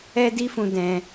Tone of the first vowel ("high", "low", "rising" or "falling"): high